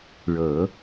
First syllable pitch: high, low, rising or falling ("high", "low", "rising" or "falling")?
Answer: low